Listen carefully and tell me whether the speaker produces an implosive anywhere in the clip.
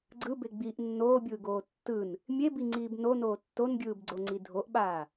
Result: yes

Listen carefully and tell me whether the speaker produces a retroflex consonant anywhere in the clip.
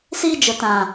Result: no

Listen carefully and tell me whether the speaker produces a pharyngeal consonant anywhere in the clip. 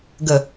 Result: no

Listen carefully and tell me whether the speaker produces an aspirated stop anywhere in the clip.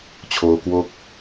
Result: yes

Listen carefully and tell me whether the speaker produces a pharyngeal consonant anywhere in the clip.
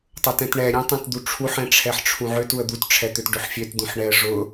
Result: yes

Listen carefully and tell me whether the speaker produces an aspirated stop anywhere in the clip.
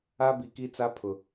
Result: yes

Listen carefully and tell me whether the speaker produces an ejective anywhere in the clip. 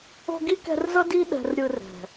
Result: no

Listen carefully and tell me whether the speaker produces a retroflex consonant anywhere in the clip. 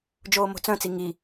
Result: no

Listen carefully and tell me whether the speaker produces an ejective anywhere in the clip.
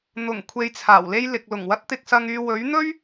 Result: no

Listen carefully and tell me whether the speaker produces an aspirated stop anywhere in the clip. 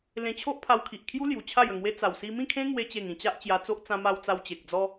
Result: yes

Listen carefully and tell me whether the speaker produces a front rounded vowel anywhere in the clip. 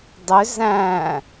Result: yes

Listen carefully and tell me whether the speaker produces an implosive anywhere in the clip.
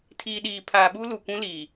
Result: yes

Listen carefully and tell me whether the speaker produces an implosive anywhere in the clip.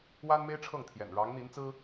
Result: no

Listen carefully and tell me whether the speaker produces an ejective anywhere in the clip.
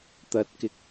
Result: no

